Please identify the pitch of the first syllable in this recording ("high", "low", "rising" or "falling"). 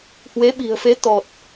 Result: rising